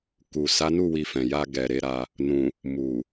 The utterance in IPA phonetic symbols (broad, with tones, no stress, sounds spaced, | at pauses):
k u˨ s a˨˦ n u˦˨ w i˧ f ɛ̃˨ j a˧ ɡ ɛ˨ ɾ e˨˦ ɾ a˧ | n ũ˨ | m u˨